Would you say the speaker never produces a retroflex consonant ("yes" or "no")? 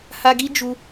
yes